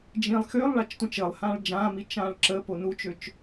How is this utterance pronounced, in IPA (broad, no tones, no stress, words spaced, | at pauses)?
d͡ʒĩlˠ xølˠ ɭat͡ʃtʷĩt͡ʃəːlˠhãːɭ d͡ʒãːmi t͡ʃãːɭǁəpo nut͡ʃøt͡ʃ